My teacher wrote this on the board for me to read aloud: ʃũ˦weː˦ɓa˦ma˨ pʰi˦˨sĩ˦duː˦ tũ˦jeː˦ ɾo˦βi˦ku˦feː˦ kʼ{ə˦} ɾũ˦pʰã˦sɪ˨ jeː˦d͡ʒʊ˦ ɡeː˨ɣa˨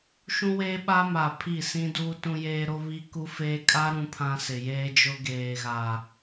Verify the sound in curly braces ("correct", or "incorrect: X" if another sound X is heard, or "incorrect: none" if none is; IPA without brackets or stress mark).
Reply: incorrect: a˦